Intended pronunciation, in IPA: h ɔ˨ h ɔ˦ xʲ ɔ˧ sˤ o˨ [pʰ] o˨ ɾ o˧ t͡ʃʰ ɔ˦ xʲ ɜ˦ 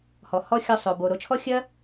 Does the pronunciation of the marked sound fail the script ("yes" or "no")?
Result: yes